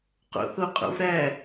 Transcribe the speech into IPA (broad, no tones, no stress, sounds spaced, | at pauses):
q o̰ θ o qʼ o̰ v ɾ æ